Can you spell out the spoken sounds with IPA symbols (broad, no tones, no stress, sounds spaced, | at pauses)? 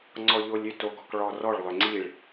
ŋ͡ǀ ɔ ʎ o lʲ ʏ t o ɡ ɔ k ɭ ɔ r ɔ ɭ lˠ ʏ ŋ͡ǀ i ɭ